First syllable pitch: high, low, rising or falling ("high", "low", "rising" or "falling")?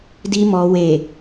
low